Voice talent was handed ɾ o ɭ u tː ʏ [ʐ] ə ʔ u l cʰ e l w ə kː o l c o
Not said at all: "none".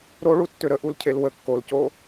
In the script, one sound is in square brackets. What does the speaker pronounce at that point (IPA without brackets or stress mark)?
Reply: ɾ